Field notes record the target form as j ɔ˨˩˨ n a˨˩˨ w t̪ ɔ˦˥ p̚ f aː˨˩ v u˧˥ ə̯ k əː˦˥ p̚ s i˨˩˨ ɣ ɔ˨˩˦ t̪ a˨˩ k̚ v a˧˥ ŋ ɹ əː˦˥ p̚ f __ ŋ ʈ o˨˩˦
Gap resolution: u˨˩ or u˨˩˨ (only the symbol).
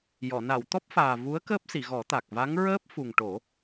u˨˩